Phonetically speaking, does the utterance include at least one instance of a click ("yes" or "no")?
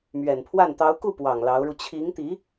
no